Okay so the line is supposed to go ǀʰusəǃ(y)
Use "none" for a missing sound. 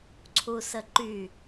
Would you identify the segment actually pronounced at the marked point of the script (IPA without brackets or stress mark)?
y